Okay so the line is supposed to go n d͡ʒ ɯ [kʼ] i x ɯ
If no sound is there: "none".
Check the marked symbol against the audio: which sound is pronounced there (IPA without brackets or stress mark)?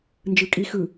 kʼ